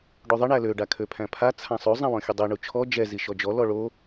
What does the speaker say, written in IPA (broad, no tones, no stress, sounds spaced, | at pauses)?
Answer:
ɖ o ðˤ ɘ ɳ æ l ø ɖ a kʰ ø pʰ æ̃ pʰ a t͡sʰ ã sˤ o zˤ æ̃ w ɔ̃ xʲ ɘ dˤ i ɳ u t͡ʃʰ ɔ d͡ʒ ɛ z i ʃ ɔ d͡ʒ ɔ l ɔ ɭ o